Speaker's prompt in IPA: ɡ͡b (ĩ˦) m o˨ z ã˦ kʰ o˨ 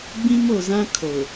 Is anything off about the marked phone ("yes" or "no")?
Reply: no